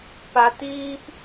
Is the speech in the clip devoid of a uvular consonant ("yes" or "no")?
yes